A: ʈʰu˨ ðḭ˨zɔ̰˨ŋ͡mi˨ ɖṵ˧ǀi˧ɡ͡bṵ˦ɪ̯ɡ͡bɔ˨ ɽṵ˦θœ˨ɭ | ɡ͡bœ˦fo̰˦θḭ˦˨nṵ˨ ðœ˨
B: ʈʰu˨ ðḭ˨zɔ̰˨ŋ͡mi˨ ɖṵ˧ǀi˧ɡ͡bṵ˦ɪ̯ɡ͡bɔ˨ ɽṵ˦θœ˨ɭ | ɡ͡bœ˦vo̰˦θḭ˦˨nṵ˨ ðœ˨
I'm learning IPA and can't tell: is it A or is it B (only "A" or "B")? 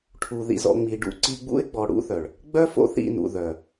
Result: A